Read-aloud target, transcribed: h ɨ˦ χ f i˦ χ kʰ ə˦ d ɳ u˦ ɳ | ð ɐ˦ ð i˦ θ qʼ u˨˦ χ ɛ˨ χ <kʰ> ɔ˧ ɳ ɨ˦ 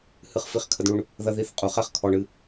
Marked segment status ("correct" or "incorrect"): correct